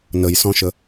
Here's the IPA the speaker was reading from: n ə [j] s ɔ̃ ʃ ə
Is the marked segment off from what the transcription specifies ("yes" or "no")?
no